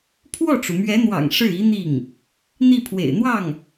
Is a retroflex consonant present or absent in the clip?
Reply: present